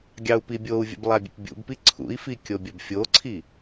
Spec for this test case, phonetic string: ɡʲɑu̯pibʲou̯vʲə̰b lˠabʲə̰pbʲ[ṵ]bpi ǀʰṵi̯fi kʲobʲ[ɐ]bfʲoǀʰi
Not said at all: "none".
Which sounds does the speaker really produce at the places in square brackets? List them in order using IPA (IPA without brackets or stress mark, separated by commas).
ṵ, ɐ